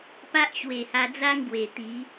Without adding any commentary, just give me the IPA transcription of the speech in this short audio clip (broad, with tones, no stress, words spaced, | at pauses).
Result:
pa˦ʔɕwe˨˩ha˧d͡za˦ŋ ɡwe˨˩t̪i˨˦